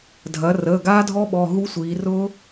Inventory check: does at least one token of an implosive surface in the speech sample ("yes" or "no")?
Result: yes